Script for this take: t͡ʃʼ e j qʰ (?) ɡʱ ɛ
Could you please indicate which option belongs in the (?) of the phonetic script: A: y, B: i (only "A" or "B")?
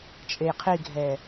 B